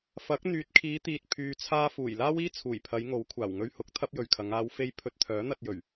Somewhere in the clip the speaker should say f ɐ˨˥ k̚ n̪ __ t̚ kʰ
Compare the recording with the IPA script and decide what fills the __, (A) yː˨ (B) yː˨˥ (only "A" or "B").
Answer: A